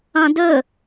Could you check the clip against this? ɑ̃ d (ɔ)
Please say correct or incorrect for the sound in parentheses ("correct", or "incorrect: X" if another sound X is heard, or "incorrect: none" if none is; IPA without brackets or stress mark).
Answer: incorrect: ɵ